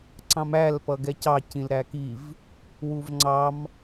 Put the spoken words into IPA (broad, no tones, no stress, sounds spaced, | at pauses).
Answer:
ǀ ɑ̃ m æ l p ʌ ɡ ɛ c ɑ c ĩ l ɾ æ k i v | w u v ŋ͡ǀ ɑ m